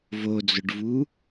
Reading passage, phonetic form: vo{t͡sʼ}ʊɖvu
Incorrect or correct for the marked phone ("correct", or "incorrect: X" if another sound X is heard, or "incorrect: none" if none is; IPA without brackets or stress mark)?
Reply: incorrect: d͡z